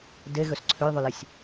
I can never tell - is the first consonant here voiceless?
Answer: no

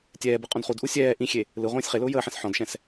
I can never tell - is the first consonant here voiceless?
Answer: yes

